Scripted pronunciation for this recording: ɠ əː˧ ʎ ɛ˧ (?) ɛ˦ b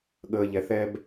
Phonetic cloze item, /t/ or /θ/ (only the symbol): θ